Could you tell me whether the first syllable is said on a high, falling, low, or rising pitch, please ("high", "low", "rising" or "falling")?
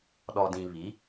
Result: low